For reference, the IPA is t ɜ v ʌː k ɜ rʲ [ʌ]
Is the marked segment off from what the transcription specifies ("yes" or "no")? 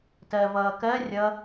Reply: no